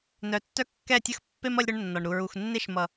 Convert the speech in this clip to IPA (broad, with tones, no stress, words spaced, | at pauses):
nœ˨tːœ˦ kːɛ˦˨tʲə˦xpːe˦m ʌ˦lʲɾœ˦ɳnːɒ˨ɳ ɾu˨ ɹu˨xnːe˦ʃ mʌ˨